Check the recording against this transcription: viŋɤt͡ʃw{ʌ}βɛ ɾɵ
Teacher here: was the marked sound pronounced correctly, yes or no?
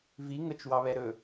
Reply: no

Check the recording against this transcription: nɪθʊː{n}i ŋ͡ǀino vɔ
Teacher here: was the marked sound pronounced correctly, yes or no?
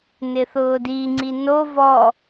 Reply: no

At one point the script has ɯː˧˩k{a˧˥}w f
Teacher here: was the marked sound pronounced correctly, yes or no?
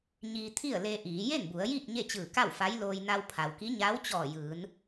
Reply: no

